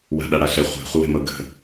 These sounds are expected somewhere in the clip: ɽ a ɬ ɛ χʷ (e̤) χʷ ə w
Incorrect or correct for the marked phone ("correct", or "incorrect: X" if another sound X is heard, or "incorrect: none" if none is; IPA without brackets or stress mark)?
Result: correct